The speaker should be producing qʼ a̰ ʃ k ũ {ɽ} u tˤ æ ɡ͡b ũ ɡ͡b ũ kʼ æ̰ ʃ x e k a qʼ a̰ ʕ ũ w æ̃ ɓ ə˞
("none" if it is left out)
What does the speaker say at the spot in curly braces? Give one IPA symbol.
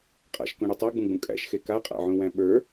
ɽ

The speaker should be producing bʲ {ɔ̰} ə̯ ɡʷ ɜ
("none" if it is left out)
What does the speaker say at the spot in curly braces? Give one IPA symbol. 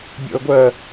ɔ̰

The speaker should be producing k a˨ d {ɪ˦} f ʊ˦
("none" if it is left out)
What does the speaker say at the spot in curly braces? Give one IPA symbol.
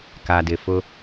ɪ˨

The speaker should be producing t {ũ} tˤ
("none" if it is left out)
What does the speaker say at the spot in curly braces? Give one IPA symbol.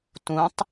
ũ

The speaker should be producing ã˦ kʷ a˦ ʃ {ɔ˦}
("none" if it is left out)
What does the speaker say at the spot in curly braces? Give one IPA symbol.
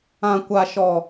ɔ˦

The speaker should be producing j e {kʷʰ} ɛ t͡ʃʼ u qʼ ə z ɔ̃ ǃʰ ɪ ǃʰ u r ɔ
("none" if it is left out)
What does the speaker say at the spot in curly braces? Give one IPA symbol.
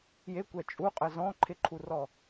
kʷ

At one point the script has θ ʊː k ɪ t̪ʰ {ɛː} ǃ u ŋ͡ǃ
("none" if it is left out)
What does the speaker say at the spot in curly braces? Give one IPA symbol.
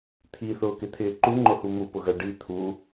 ɪː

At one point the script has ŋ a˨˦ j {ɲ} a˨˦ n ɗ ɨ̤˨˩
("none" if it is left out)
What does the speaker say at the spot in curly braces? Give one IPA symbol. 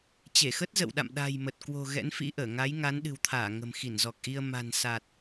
ŋ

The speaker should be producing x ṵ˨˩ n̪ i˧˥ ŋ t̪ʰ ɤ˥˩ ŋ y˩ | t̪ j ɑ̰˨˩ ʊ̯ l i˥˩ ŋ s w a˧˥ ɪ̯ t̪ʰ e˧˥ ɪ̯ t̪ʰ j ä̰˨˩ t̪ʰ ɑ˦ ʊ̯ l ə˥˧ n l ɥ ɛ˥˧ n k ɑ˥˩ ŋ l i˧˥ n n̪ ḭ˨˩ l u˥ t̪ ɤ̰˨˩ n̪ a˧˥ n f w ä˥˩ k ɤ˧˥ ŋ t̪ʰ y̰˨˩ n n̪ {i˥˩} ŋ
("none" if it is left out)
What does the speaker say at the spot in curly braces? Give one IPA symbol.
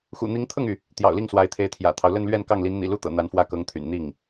i˥˩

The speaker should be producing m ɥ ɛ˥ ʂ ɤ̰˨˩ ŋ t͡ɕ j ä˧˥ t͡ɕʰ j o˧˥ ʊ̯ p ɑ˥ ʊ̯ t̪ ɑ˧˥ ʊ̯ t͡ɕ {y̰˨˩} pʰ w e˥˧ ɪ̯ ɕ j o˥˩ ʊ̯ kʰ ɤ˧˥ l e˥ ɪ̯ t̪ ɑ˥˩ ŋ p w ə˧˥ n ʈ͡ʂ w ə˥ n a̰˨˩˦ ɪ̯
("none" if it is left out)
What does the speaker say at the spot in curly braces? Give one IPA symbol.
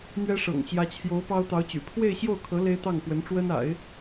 y̰˨˩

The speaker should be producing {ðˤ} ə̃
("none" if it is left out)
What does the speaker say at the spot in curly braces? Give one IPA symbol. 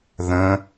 ð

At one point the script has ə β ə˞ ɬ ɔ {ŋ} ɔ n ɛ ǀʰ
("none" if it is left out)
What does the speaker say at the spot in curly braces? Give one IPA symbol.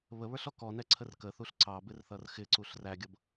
k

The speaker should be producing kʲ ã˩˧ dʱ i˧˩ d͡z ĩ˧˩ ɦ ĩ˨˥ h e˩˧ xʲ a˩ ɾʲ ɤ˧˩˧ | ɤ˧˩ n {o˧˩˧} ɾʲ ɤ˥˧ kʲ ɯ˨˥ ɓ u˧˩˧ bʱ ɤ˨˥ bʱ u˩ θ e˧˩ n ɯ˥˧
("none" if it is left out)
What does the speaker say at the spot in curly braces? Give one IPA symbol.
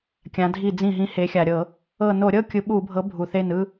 o˧˩˧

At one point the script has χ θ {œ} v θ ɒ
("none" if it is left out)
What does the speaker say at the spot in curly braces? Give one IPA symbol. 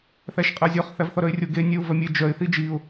æ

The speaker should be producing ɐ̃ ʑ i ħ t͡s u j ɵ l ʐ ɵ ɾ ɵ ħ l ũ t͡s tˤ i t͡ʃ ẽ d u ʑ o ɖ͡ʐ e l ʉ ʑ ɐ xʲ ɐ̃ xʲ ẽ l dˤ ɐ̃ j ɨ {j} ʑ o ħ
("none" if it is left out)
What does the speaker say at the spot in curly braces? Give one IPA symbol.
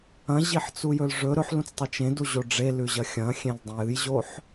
j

